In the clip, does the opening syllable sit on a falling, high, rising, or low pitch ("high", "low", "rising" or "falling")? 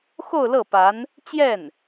falling